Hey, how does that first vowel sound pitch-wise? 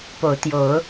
rising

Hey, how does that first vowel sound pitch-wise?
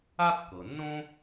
high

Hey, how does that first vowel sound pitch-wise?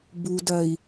low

